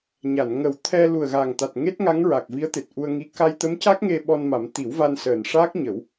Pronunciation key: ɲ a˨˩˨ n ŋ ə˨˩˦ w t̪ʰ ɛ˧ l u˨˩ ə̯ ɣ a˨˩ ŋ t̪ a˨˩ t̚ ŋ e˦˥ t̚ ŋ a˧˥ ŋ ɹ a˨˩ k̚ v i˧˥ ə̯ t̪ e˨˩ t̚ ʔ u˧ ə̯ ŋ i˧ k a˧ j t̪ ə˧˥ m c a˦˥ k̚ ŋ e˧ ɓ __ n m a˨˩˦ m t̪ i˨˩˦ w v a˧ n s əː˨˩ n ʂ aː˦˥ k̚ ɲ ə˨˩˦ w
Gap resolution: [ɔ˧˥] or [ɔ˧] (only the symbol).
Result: ɔ˧